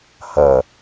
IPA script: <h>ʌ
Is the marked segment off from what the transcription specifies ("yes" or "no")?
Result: no